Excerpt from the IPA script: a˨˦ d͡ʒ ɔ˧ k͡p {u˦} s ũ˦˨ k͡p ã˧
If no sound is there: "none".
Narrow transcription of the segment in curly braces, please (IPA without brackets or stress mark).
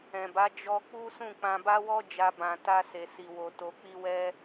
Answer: u˦